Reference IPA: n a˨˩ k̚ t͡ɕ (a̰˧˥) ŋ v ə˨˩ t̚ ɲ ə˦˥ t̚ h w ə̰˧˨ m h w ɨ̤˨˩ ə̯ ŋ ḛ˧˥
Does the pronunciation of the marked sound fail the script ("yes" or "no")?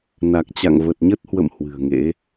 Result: yes